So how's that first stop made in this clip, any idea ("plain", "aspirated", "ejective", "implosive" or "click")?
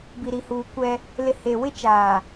plain